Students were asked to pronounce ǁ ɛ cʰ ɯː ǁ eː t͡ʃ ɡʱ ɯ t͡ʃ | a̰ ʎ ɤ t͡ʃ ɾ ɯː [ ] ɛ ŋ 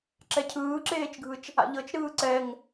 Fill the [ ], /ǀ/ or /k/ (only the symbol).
ǀ